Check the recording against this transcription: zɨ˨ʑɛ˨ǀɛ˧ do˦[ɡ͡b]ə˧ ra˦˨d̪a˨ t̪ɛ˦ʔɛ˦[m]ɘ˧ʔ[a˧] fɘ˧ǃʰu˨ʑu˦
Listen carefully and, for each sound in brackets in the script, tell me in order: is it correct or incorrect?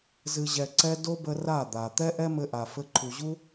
incorrect: b, correct, incorrect: a˨

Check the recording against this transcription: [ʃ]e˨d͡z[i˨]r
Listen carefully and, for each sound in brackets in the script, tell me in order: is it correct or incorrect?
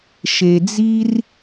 correct, incorrect: i˦

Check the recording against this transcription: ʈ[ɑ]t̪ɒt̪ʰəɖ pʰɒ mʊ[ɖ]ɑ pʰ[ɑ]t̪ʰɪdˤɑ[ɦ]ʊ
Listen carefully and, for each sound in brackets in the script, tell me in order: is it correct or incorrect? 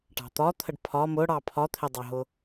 incorrect: ɑ̤, incorrect: ɽ, incorrect: ɒ, correct

